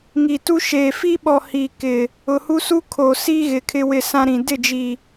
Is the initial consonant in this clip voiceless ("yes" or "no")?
no